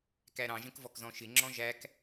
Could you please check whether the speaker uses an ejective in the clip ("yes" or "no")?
no